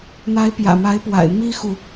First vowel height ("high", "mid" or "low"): low